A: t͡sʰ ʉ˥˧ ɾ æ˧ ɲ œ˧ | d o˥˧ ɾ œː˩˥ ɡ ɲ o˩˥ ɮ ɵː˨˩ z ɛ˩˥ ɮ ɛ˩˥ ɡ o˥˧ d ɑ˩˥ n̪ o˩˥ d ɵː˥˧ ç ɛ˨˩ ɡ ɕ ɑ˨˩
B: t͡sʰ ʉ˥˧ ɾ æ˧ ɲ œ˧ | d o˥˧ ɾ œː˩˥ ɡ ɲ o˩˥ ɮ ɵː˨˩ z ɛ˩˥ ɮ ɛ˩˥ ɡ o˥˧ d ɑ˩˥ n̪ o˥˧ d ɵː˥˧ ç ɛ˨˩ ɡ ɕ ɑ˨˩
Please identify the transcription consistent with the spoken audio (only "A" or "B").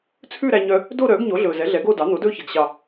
A